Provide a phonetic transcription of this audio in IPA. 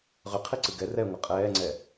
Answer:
ʁʏqʰiǀɨ ɡɛ rɛŋʷə qʼɛːŋ͡ǀɛ

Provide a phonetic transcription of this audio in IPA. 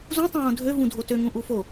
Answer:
zũ tˤũwõdʱø vũdʱotø ŋũʔufo

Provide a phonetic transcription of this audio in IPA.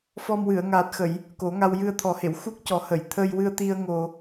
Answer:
fɔ˧m wɨ˨˩˨ə̯ŋaː˨˩t̚xə˨˩˨j | ko˨˩˦ŋa˧w jɨ˧ə̯t̪ʰɔ˨˩˦he˨˩˨w xu˦˥k̚cɔ˨˩˦hə˨˩˨j t̪ʰə˧jwɨ˧ə̯t̪i˧ə̯ ŋo˨˩

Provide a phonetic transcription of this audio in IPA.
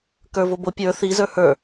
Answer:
kə˞vobo pʲə˞ θi zə˞hə˞

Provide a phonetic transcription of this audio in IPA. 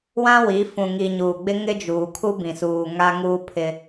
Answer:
wã˦wi˨˦ fũ˨ŋi˨ɲuː˨ɡ͡bɪ˦ ŋɪ˦d͡ʒuː˨kʰu˦bĩ˨ suː˨ŋa˦ŋuː˦pʰɪ˦

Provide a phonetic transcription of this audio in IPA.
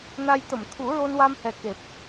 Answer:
na˧j t̪ə˨˩˨mt̪ʰu˨˩˦ ɹo˧nwa˧mhɛ˨˩ ke˨˩p̚

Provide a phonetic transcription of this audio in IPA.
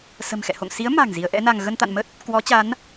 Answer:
sə̤˨˩mxɛ̰˧˨ho̰˧˨ŋ si˨˦ə̯ ma̤˨˩ŋ zi˨˦ə̯ʔɛ̰˧˥na˧ŋ ɣə˧nt̪a̰˧˨nmə˦˥t̚ | kwɔ˨˦t͡ɕa˨˦n

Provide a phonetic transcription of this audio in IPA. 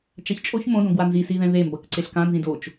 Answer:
t͡ʃaçt͡ʃʼoç mõdõɡwa nzisiðɛ̃ ðembʌk ǀeɬkãnzĩd ot͡ʃ

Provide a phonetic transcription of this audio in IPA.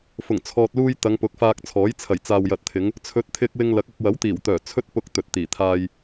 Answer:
fʊ˨˩ŋt͡sʰɔː˨t̚luː˧j t̪ɐ˨˧ŋpʊ˨˥k̚faː˧k̚t͡sʰɔː˨˥j t͡sʰɐ˨˩jt͡saː˨wjɐ˨t̚t̪ʰɪ˨˧ŋ | t͡sʰɵ˨˥t̚t̪ʰɪ˧k̚ wɪ˧ŋlɐ˨˥k̚ɐ˧k̚ wɐ˨˥wt̪iː˨˩wt̪œː˨˩ t͡sʰɵ˥t̚pʊ˧k̚ t̪ɵ˨t̚t̪iː˨˩t̪ʰaː˧j

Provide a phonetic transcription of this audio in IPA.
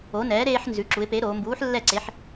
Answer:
o˨˥nɛː˨˥ɾeː˦ħ nzʉ˩˧ǁu˩˧ɪ̯ pe˨˥ɾoː˩˧ mbuː˨˥ħ lːɛ˥˩ǀe˨˥ħ

